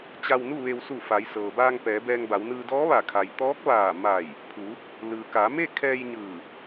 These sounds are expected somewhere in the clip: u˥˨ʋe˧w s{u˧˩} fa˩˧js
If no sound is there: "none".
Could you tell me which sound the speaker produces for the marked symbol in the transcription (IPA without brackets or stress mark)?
u˧˩